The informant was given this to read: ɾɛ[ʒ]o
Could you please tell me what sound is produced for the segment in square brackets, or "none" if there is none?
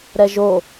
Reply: ʒ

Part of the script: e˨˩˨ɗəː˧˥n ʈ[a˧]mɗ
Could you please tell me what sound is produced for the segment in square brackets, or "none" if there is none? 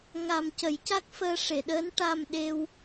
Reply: a˧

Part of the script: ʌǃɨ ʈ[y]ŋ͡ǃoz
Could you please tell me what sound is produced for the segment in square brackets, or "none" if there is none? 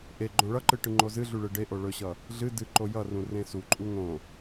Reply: ɨ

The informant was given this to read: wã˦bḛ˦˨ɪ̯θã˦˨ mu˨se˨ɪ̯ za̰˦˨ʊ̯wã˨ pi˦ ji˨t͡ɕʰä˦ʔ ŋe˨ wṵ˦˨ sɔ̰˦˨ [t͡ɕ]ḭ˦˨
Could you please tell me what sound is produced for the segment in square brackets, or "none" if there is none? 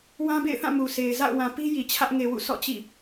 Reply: t͡ɕ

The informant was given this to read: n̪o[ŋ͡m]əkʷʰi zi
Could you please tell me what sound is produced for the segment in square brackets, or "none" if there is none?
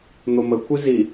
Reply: m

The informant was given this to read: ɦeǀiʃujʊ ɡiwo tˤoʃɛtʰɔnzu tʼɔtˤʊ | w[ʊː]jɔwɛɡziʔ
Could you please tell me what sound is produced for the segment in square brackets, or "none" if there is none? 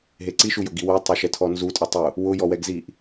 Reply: ʊ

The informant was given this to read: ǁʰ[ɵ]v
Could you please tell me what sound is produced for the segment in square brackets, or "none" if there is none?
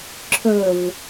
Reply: ɵ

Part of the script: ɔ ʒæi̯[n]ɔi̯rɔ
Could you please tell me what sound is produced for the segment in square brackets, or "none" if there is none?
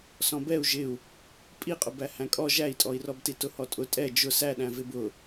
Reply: tʼ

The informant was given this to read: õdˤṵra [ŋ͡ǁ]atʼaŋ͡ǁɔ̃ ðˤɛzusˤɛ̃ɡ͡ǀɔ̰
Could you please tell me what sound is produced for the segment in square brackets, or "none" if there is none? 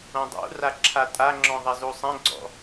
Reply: ǁʰ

